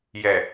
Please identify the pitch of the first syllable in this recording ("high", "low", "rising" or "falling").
low